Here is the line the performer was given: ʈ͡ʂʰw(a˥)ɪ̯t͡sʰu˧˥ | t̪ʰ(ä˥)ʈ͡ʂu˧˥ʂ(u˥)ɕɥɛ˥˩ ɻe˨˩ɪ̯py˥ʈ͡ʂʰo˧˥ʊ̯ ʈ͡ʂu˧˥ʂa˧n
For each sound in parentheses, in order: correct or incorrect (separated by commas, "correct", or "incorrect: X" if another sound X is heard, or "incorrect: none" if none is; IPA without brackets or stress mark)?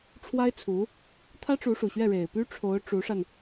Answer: correct, correct, incorrect: u˨˩